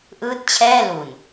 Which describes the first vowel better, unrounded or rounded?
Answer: unrounded